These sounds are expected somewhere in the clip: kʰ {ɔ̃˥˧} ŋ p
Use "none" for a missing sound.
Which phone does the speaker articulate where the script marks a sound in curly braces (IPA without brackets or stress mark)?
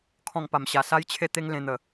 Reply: ɔ̃˥˧